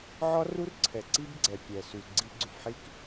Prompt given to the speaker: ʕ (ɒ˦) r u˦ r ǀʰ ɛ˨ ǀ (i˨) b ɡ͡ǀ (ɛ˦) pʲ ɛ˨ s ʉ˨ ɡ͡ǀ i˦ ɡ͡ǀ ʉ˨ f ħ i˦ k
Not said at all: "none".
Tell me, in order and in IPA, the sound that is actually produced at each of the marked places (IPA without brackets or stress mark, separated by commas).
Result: ɒ˦, i˦, ɛ˨